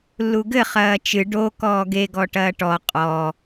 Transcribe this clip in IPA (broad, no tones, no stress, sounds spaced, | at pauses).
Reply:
lː u ɡ ɘ χ ɐː t͡ʃ ɨ ɖ o k ɔː ɡ e ɡ ɔ ʈ ɐː ʈ ɔ qʼ ɔ